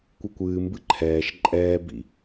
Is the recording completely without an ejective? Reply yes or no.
no